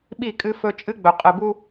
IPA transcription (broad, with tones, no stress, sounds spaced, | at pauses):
ɓ i˦˨ kʼ ɨ˦ f ɵ˦ t͡ʃʼ ɨ˦ ɡ͡b ɵ˨ qʼ ɨ˨ b u˦